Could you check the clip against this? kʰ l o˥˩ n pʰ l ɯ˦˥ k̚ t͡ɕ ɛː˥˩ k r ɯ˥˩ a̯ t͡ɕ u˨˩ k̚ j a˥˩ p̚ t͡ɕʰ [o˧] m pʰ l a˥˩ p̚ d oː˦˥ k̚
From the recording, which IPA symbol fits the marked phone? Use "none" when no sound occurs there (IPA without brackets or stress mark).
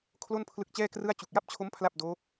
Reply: o˦˥